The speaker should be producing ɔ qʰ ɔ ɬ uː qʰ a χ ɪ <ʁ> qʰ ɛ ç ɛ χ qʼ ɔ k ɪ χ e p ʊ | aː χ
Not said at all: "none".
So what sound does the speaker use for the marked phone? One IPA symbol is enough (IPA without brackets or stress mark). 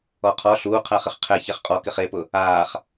χ